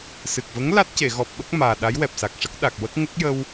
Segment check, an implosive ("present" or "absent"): present